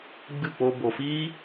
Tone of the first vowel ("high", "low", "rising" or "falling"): falling